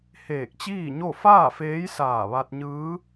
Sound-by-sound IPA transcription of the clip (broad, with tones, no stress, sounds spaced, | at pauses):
h eː˧˩ k̚ t͡ɕ iː˥˨ ɲ o˥˨ f aː˥˨ f eː˧˥ j s aː˧˩ ʋ a˧ t̚ ɲ ɯː˧˥